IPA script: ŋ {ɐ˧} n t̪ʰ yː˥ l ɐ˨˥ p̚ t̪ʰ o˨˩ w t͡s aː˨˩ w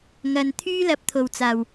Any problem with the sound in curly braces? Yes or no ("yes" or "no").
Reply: yes